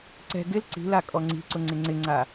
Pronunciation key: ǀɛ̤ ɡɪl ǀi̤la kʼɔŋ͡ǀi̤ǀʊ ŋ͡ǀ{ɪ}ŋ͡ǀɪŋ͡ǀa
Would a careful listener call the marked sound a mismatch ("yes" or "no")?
no